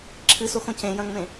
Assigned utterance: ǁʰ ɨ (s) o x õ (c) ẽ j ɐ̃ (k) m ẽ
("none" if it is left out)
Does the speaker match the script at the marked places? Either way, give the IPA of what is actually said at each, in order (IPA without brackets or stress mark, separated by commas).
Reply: s, c, ŋ